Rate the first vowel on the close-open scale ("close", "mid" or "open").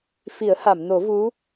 close